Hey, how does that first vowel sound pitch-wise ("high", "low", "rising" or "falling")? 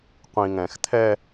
low